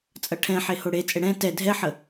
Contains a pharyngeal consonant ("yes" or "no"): yes